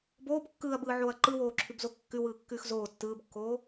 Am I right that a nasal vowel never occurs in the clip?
yes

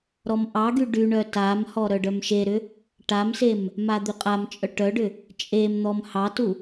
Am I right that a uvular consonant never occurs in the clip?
no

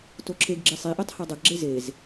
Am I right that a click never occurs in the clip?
no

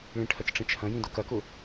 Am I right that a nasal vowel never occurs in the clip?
no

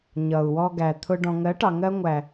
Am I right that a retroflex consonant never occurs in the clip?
no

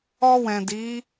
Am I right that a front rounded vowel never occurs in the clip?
yes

